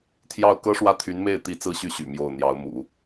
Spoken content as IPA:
t̪ʰjɑ˥˩ʊ̯ kɤ˥ʂwä˥˩t̪ʰy˧˥nme˥˩ɪ̯ t̪i˥ t͡sɹ̩˥˧ɕy˥˩ɕy̰˨˩ mjo˥˩ʊ̯ n̪jɑ˧˥ʊ̯mṵ˨˩˦

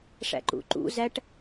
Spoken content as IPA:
ʂæ̰ǃṵǃṵ zæʈ

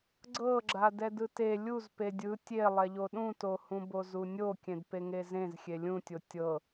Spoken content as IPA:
ɡ͡ǀɤɡ͡ǁa dɛdɯte lʲuz pedʲɯ tʲelˠɛʎo ɗũtohũ bozunʲo kʲẽdpeŋezẽz xʲelʲũtʲo tʲɤ

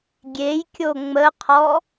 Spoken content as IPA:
ɡʲejkʲo ŋ͡məqʰɔ

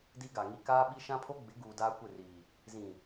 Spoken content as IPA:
di˦ɡa˨ŋi˦ kaː˦ɓi˦ ʃã˦pʰo˦ ɡ͡bɪ˨˦ɡuː˨ daː˦kʷɪ˦˨riː˨ | zĩ˨

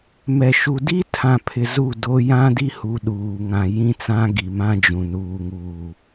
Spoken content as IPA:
mɛ˨ʃu˨ di˦ tʰã˨pʰɪ˨ zu˦˨do˦ jã˦di˦hu˨ ɗuː˨ŋã˨jĩ˦t͡sã˦ ɡi˨ mã˦d͡ʒũ˨ nuː˨ŋuː˨

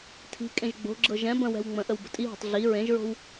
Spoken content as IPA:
tʰi̤kʼẽʒ ɡ͡bo̤ɡ͡ǁɤ ʒɛ̃ bə̃wɛ̤w ŋ͡mə̃ʔəw bə̤tʼiɦo̤tˤ ɮi ɹẽʒɹo̤w

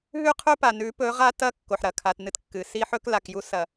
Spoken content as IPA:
ɦʉ˦qʰɵ˦pa˨ nʉ˨˦pɵ˨˦ʁa˦tɐ˦ kːo˨ħɾɐ˨kʰa˨t nɨ˦tkːɨ˨ si˦ħɵ˦kla˨k ju˦sɐ˨

